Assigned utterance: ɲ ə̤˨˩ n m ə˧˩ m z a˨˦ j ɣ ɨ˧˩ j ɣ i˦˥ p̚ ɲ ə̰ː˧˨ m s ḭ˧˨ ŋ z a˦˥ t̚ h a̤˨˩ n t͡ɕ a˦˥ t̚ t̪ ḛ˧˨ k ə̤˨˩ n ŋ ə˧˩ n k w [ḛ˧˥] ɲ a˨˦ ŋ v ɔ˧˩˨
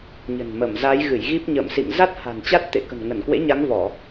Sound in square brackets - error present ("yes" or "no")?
no